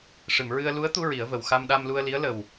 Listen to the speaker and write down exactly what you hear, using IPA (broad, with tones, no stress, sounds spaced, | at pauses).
ʂ ɨ˨˩˨ m ɹ ɨ˧ ə̯ l u˧˥ ə̯ t̪ u˧ ɹ i˨˩˦ ə̯ v ə˨˩ w x a˧ m ɗ a˧ m l u˧ ə̯ l i˧˥ ə̯ l ə˨˩ w